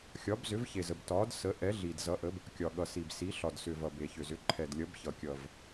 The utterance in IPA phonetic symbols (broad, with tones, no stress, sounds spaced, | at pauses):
xʲ ɒ˨˥ b z ʏ˨˥ v ç e˨ z ə˨ b t ɒ˨˥ d s ə˨˥ ʔ ɛ˨˥ ɮ i˨ d z ʌ˨˥ ʔ ə˨˥ b | kʲ ɒ˨ ɠ ʌ˨ s i˨ b s i˨˥ ɬ ɒ˨ d s ʏ˨ v ʌ˨ b e˨ ç ʏ˨ z ʏ˨˥ ǃʰ ɛ˨ d lʲ ʌ˨˥ b ç ʌ˨ kʲ ʌ˨ v